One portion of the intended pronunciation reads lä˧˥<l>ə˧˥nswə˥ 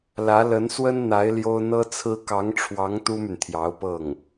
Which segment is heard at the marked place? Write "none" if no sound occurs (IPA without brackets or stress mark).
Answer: l